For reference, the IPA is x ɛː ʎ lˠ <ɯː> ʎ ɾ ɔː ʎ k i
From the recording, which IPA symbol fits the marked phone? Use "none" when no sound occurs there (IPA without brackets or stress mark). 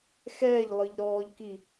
ɯ